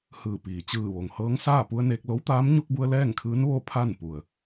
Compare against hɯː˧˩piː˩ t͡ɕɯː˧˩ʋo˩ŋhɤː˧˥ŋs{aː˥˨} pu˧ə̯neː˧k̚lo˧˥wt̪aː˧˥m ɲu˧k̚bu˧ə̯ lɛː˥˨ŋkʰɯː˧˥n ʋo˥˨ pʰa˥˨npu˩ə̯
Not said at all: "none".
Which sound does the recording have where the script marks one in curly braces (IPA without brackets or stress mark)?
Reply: aː˥˨